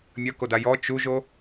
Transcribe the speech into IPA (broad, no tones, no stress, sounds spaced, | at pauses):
mʲ ɐ k o d a j ɔ t͡ʃ u ʒ o